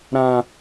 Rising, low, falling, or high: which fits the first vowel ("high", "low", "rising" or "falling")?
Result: high